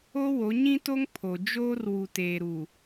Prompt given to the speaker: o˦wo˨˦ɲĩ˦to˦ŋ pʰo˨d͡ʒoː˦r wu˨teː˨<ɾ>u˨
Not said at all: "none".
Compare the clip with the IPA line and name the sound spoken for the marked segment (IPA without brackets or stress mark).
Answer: ɾ